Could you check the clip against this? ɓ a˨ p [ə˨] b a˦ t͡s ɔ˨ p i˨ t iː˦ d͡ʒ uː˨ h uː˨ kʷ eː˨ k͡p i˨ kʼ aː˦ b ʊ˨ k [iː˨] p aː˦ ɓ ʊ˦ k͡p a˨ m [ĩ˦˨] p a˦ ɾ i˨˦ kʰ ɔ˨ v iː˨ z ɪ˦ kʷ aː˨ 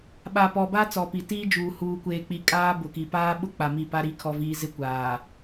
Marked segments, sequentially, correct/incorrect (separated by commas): incorrect, incorrect, incorrect